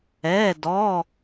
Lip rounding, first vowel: unrounded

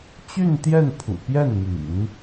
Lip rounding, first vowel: rounded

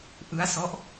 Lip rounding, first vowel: unrounded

